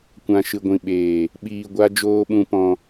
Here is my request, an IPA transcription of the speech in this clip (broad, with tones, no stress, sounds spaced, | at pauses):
kʷ ã˨ ʃ ɨ˨ ɡʷ ĩ˨ ɓ eː˨ | ɓ iː˨ ɡʷ a˧ d͡ʒ oː˧ ɓ ũ˧ p ɔ̃˧